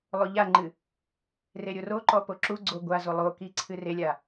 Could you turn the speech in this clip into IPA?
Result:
lˠ o ʎ a ŋ͡ǃ ɨ | r e ɾʲ o r o ǃ ɔ p o ǁ u ɡ͡ǀ o ɡʷ a z o lˠ o k i ǀʰ ɨ r e lʲ a

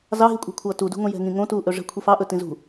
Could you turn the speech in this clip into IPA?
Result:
z ɑ ɦ i kʷʼ ɛ̤ kʷʰ ʌː t u d ṳ ŋ õ j ɛ̤ ŋ ĩ ŋ õ t uː ʔ ɵ ʐ ɛ̤ kʷʰ i f ɑ ʔ ɵ t ĩ z ṳ

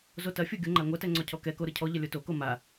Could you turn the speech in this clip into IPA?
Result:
z o t ɐ fʲ o ɡʲ o ŋ͡ǃ a ŋʷ ɐ t ɛ ŋ͡ǀ ɔ cʰ ɔ k ɛ k o ɾ ɯ cʰ ɔ ʎ ɐ lʲ o t o k o m a

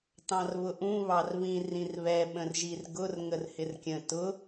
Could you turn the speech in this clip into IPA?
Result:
t ɑ̃ r β ʊ ʔ ũ β ɑ r β ĩ r ĩ r β ɛ ɓ ə̃ r ʒ i r ɡ ʊ r ŋ ə r h ɪ r kʲ ə̃ t ʊ

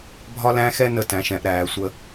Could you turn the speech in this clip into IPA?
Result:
bʱ ɒ˦ l æ̃˦ x ɛ˦ n ə˦ t æ̃˩˧ ʃ ɛ̃˩˧ ʔ ɾ æː˩˧ sʷ ə˦

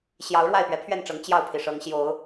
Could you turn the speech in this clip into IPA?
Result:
ɕ j ɑ˨˦ ʊ̯ ɻ w a˥˨ ɪ̯ p ɥ ɛ˨˦ pʰ ɥ ɛ˥˨ n ʈ͡ʂ ɤ˨˦ ŋ t͡ɕ j ɑ˥˨ ʊ̯ pʰ i˩ ʂ ɤ˨˦ ŋ ɕ j o˨˦ ʊ̯

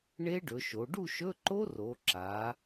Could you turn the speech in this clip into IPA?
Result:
ɳ e˦˥ ɖ ɵ˩˧ ʃ o˩˧ ɖ u˥˨ ʃ ɵ˧˥˧ ǃ o˦˥ r o˩˧ ǁ a˩˧

